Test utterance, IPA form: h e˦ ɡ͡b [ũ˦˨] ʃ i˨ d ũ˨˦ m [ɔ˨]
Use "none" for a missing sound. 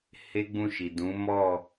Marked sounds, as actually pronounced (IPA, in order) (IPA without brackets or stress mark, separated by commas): ũ˦˨, ɔ˦˨